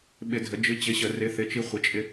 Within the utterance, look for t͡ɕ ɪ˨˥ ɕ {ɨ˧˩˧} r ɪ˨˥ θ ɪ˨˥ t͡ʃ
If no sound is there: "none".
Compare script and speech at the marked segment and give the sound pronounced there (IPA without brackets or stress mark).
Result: ə˧˩˧